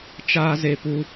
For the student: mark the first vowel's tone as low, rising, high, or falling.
high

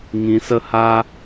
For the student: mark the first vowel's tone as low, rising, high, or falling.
low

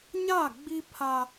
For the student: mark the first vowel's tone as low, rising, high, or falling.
falling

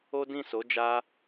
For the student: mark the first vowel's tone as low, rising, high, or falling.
high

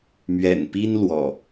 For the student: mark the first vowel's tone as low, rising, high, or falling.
low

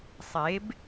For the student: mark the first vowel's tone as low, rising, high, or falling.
rising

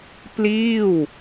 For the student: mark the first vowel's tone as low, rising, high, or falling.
falling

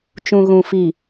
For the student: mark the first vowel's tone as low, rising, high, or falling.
low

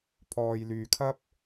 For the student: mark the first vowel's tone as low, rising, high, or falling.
low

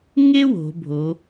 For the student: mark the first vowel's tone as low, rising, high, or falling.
high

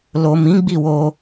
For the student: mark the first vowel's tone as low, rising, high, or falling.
low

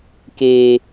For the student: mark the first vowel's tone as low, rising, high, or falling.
high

